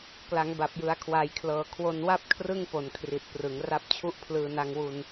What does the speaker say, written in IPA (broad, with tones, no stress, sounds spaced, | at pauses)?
k l a˩˦ ŋ b a˨˩ p̚ j ɯ˩˦ a̯ kʰ w a˩˦ j kʰ l ɤː˨˩ kʰ w o˧ n w a˥˩ p̚ kʰ r ɯ˥˩ ŋ p o˨˩ n kʰ r i˨˩ t̚ p r ɯ˩˦ ŋ r a˦˥ p̚ t͡ɕʰ u˥˩ ʔ pʰ l ɯː˧ n a˧ ŋ w u˧ n